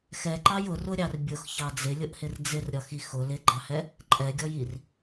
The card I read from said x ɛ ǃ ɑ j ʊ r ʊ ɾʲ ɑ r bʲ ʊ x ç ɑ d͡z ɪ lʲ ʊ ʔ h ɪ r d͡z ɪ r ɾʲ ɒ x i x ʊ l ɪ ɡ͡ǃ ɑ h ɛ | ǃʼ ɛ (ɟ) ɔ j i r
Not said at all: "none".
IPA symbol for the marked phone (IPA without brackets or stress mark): ɡʲ